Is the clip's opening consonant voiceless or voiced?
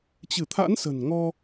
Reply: voiceless